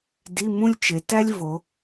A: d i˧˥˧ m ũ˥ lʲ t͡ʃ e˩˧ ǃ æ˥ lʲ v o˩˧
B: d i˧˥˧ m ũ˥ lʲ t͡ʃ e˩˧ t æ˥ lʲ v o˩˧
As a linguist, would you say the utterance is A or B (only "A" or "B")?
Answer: B